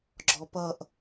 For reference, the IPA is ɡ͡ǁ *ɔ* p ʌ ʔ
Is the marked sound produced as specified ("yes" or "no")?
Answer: yes